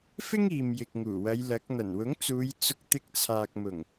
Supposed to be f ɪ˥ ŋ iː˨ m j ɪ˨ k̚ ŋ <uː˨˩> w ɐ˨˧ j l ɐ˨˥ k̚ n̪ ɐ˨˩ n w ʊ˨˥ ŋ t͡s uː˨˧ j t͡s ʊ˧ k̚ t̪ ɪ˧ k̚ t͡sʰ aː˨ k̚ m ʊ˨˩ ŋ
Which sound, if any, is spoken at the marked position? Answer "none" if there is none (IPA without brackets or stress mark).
uː˨˩